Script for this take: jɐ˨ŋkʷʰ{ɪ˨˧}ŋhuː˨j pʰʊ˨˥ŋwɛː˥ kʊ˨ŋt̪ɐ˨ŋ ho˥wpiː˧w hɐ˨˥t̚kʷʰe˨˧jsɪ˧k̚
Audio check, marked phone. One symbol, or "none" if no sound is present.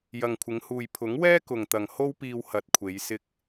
ɪ˨˧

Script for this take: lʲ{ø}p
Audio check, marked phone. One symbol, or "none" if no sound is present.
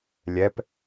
ɛ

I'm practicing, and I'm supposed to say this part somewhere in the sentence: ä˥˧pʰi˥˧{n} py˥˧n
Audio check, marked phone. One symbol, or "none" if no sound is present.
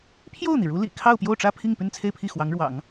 ŋ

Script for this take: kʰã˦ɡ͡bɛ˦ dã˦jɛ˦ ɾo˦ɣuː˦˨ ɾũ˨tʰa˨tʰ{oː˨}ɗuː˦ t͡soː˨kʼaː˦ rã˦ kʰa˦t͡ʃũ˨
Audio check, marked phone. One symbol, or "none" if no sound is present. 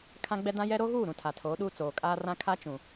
oː˨˦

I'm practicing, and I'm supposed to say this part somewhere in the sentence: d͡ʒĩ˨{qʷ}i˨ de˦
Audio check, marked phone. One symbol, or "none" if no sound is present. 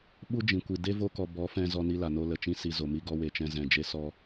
kʷ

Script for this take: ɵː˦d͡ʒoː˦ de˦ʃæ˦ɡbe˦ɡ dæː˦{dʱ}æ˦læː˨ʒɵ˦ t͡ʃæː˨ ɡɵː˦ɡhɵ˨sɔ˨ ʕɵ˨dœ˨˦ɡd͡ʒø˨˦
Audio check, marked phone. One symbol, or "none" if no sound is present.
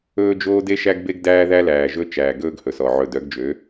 ð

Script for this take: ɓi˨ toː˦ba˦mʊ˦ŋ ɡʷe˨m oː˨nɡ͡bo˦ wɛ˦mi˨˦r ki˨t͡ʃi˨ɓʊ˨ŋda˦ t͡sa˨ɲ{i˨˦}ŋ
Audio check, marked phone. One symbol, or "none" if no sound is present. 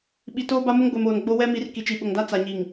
i˨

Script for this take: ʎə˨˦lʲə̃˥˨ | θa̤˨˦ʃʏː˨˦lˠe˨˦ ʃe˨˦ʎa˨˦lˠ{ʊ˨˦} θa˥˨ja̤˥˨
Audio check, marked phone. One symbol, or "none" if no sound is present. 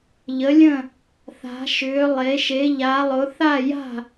ʊ˨˦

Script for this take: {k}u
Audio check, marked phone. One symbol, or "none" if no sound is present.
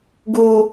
ɡ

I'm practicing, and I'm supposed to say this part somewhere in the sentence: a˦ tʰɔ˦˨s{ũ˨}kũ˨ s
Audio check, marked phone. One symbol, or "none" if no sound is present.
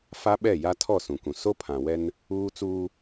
ũ˨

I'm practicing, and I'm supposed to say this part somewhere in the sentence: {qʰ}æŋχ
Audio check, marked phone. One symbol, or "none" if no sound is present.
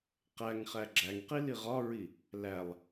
q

